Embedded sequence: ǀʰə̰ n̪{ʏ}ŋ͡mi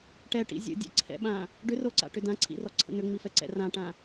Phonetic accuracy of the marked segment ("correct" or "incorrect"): correct